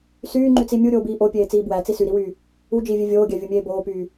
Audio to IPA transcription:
s yː ŋ͡ǃ y t͡s i mʲ u ɾʲ oː b iː ʔ o pʲ eː t͡s iː b w æ t͡s i s y ɾ i w yː | u d͡ʒ iː vʲ e vʲ oː ɡʲ æ vʲ u mʲ eː b oː p yː

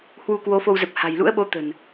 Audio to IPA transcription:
h w u˧ k w o˨˦ f o˧ w z ə˨˩ p̚ h a̤˨˩ j l ṵ˧˥ ə̯ ɓ o˨˦ t̪ ə̤˨˩ n

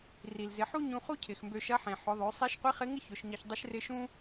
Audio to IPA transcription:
r i˩ l z ɪ˩˧ ħ u˥ ɲ ũ˧ χ u˥ cʰ ɪ˩ x m b ø˧ ʃ ɐ˧˥ ħ ẽ˩ ħ ʊ˩˧ ðˤ ø˩˧ sˤ i˧˥ ʃ qʷ i˧˥ χ ɪ˧˥ ŋ ɪ˥ ç ʊ˩˧ ʃ ɲ ɐ˧ ç dˤ ɪ˧˥ ʃ r ɪ˧˥ ʃ ũ˥

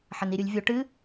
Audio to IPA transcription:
ħ ɐ n i ɾʲ u lʲ vʲ o ʈ ɨ

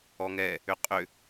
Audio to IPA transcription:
ɔ ŋ ɛ | ʏ qʼ ʏ

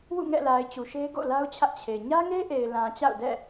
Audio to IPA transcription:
w ṵ˦˨ ŋ ɛ̰˦˨ l a˨ ɪ̯ t͡ɕ u˨ ʃ e˦ ɪ̯ ɡ o̰˦˨ l a˦ ʊ̯ t͡ɕʰ ä˦ ʔ t͡ɕʰ e˨ ɲ ä˦ ŋ e˦ ʔ e˨ ɪ̯ l ã˨ t͡ɕ a̰˦˨ ʊ̯ d ɛ̰˦˨

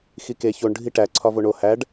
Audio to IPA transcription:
x i k e ç o ɳ ɖʱ i ʈ æ ǀʰ ɒ v o ɳ o h æ ɖ

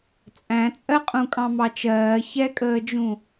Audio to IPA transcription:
t͡sʼ æ̃ t͡sʼ ɜ qʼ ũ kʼ ɑ̃ m ɑ t͡ʃ ɜː ç ɛ kʼ əː d͡ʒ ũ

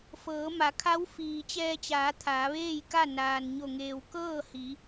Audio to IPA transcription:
f ɤː˩˧ m a˩˧ kʰ a˧˥ w f iː˩ t͡ɕ ɛː˧ t͡ɕ aː˩˧ t̪ʰ aː˩˧ ʋ eː˥˨ j k a˥˨ n aː˩ n ɲ o˧˩ ŋ eː˩ w k ɤː˥˨ h i˩˧

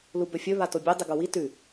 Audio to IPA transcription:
l u b ɵ fʲ ɵ β a t o bʲ ɵ dˤ ɨ ɡ o w i t ʉ

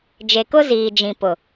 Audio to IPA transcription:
d͡ʒ e˨ k ʊ˦ z iː˨ d͡ʒ ĩ˨ p ʊ˨

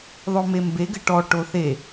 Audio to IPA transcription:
ðˤ o m e m b e ɡ ɘ ʈ ɔ ʈ o θ e

